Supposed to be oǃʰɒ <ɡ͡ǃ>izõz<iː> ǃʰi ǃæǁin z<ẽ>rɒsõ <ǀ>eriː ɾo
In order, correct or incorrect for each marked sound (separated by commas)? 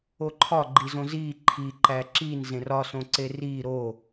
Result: correct, correct, correct, correct